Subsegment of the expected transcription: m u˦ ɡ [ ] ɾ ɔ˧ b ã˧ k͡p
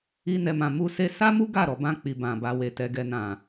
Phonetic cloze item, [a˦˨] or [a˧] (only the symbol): a˦˨